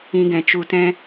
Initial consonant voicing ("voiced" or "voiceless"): voiced